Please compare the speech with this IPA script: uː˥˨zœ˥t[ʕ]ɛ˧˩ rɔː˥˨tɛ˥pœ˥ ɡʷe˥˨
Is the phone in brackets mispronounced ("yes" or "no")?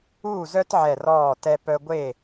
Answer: no